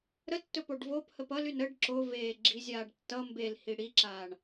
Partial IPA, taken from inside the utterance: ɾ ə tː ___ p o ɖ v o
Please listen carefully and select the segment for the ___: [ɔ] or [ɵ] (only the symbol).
ɵ